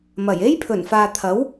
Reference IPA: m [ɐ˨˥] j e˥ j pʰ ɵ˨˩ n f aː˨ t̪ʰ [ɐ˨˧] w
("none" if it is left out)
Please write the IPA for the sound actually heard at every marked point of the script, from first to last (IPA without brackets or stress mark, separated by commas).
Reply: ɐ˨˩, ɐ˨˥